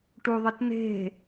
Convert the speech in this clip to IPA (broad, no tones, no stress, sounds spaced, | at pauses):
ʈ u ðˤ ɪ t n̪ e̤